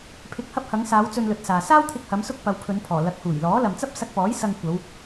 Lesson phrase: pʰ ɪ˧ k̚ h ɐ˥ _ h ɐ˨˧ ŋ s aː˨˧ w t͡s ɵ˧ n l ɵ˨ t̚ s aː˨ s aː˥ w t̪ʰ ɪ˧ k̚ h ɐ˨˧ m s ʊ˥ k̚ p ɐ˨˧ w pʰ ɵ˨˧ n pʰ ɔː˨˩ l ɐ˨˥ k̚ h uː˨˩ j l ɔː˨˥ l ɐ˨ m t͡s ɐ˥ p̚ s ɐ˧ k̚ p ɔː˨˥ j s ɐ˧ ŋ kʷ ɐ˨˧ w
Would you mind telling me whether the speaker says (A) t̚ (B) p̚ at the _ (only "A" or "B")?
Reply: B